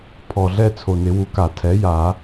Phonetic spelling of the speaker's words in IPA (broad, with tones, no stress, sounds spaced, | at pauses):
pʰ ɔ˨˩ ɮ ɛ˥˧ t͡sʰ o˨˩ n ɪ˨˩˦ w u˩˥ k a˨˩˦ tʰ ɛ˩˥ j a˨˩˦